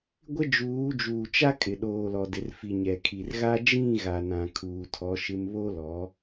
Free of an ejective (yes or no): no